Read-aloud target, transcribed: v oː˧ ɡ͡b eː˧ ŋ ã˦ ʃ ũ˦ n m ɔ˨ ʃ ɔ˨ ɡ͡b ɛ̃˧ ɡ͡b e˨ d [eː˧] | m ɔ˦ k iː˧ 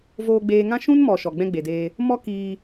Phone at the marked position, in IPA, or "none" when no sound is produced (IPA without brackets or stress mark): eː˧